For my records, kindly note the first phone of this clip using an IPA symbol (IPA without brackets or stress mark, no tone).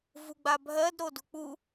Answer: v